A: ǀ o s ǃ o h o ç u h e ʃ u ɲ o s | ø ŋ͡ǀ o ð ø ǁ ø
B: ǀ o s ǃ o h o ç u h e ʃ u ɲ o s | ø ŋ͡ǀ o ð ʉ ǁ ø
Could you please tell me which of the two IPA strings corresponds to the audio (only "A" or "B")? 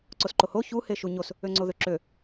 A